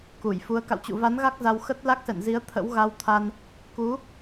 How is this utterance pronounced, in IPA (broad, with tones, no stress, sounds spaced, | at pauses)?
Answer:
k u˧˩ j f u˨˦ ə̯ k a̰˧˨ w t͡ɕ ṵ˧˨ v a˨˦ n ɣ a˦˥ k̚ z a˧ w x ə˦˥ t̚ l a˦˥ k̚ s ɛ̰˧˨ n z i˨˦ ə̯ t̪ʰ ə̰˧˥ w ɣ a˧ w t̪ʰ a˧ n | k u˨˦